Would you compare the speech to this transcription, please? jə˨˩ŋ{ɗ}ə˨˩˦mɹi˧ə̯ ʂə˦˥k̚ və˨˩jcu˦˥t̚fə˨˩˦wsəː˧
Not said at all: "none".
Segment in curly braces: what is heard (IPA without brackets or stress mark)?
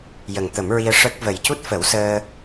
t̪